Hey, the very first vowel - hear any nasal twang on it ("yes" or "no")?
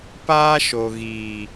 no